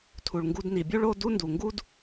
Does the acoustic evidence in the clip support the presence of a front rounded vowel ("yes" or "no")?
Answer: no